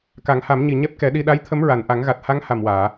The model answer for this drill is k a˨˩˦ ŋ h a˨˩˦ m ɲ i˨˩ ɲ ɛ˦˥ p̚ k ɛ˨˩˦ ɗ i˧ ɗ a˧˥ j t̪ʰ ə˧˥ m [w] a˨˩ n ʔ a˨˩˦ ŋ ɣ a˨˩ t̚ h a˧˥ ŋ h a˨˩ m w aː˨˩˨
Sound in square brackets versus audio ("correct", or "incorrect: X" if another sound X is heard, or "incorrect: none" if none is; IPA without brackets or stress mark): incorrect: ɹ